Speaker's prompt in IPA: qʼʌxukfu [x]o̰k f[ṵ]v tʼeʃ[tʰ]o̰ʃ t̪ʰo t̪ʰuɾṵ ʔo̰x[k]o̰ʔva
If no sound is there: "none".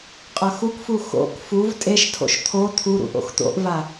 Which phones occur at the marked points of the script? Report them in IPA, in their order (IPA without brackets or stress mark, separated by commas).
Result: x, u, tʰ, t̪